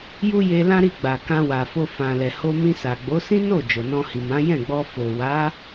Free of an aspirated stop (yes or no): yes